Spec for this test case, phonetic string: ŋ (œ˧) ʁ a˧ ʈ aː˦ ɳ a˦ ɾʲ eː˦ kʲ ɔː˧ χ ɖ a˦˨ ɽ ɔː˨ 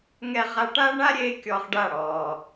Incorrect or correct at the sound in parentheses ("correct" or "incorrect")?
incorrect